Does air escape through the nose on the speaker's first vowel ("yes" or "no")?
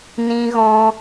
yes